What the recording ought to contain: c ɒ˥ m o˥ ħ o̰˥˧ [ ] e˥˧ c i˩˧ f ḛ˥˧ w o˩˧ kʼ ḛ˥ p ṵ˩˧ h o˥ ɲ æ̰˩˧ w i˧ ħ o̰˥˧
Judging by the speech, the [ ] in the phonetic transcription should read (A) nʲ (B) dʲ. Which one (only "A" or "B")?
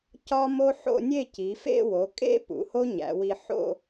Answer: A